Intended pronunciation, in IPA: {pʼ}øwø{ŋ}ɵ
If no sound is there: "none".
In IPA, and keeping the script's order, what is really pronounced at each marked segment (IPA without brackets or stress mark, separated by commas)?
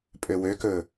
pʼ, k